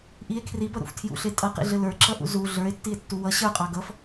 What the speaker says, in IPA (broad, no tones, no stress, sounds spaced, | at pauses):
ʔ i e̯ kʰ r i b ʌ ɾ ṵ f tʰ j ṵ ɬ e tʼ ʌ q ḭ ɮ ɘ l ə˞ ǁ ʌ ʔ ṵ z u ɮ ə˞ e̯ tː i e̯ tː u w ʌ ɕ ə˞ qʼ ɑ ɡ ʌ f